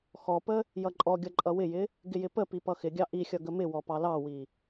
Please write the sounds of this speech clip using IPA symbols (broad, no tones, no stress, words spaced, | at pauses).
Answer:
xɔpə | jʌǃʼɔɡʲʌ ǃʼʌwɪjɪ | ɡɪjɪpəpi pʌxɪɡʲɑ ʔixʲʌ ɡəmɪwɔ pɑlɑwi